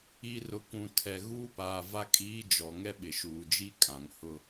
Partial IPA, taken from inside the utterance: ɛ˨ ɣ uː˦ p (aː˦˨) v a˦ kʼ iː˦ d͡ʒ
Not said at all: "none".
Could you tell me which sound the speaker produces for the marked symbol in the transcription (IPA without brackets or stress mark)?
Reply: aː˨